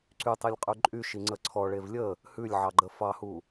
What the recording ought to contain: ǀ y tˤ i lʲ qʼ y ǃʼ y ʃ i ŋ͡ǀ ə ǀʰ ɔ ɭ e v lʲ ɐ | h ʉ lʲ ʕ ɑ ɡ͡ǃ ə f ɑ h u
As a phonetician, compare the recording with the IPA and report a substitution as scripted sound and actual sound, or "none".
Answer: ɐ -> ə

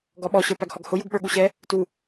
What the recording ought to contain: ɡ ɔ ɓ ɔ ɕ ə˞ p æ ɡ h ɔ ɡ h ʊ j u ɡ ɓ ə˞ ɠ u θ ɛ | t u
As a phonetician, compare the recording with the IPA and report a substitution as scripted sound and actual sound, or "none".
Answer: θ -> ɕ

